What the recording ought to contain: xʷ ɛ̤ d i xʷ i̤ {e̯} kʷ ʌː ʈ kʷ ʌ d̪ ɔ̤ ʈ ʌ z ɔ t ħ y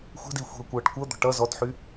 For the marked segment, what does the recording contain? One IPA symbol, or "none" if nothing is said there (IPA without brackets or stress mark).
ɐ̯